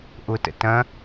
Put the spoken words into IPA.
ʔ ʊ t ə̰ t ɐ̃

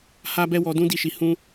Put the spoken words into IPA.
h a˦ b ɛ˦ w ɔ˧ d ũ˦ d i˦˨ ʃ i˧ h ũ˦

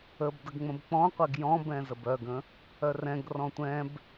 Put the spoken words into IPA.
ə b d ə ɡ ŋ͡m ə̃ b k͡p ɔ̃ qʷ ɛ ɡ j ɔ̃ b ɛ̃ z ə b œ ɡ ə̃ | œ r ɛ̃ ɡ r ɔ̃ tʷ ɛ̃ b

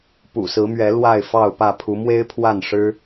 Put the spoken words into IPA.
p ṵ˨˩ s ɹ̩˨˦ m ɥ ɛ˨˦ l w a˥˨ ɪ̯ f ɑ˥˨ ʊ̯ p ä˥˨ pʰ u˨˦ m w e˦ ɪ̯ pʰ w a˥˨ n ʂ ɻ̩˦

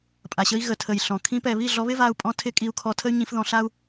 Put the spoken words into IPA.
pʼ a˨ ɕ ə˧ i̯ ɣ ə˨ tʰ ə˨ j ɬ ɔ̃˨ kʰ ĩ˧ p ɛ˨ β i˦˨ ɮ ɔ˧ β ɪ˦ v a˧ u̯ pʼ ɔ̃˧ tʰ ɪ˧ kʼ i˧ u̯ kʰ ɔ˧ tʰ ə˦ y̯ ɲ ĩ˧ f ð ɔ̃˧ ɬ a˦ u̯

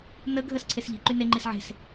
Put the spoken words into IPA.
n ə ɡʱ ə s ǀʰ e s ʎ i̤ ǃ y n e ŋ͡ǃ i s ʕ e̤ s

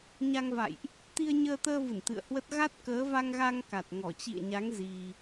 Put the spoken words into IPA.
ɲ a˧ ŋ v a̰˧˨ j ʔ | t̪ i˧ ə̯ ɲ əː˧ t̪ əː˧ v ɨ˧˩ n t̪ ɨ̰˧˨ ə̯ h w ə˦˥ t̚ ɣ a˦˥ t̚ k əː˨˦ v a˧ ŋ ɣ a˧ ŋ k a˨˩ t̚ ŋ ɔ˧˩ t͡ɕ ḭ˧˨ ə̯ ɲ a˨˦ ŋ z i˧

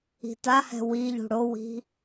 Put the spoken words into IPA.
i̤ t a h ɛ̤ w i ʎ ṳ ɽ o w i̤

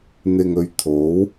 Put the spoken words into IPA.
n̪ ɪ˨ ŋ ɵ˨ ɥ t̪ʰ o˨˥ w

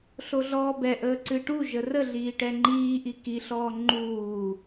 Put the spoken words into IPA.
ɬ o ɮ ɔː b ɛ ʔ əː ǀ ɨ ʈ u ʒ ə r ə ɮ iː ʈ ɛ ŋ͡ǃ iː ʔ i k i ɬ ɔː ŋ͡ǃ uː

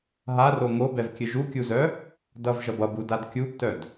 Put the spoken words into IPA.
ɦ a r o ŋ o b ɛ v kʲ ɘ ʒ u kʲ u z œ | d ʌ v ʒ ʌ b ʌ b u d a d kʲ u b t œ d

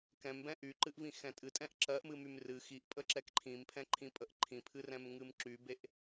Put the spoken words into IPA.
k ɛ̃ m b ɛ̃ ʔ y ǃ ɨ ʔ v ĩ x ɛ̃ tʼ ɨ tʼ ɛ̃ ʔ ǁ ɜ ʔ m ɨ m y m r ɨ x i ʔ pʼ ə ǁ ɛ k ǃʰ ĩ m pʰ ɛ̃ ǃʰ ĩ pʼ ə ʔ ǃʰ ĩ pʰ ɨ r ɛ̃ m ŋ ɨ m ǁ y b e ʔ

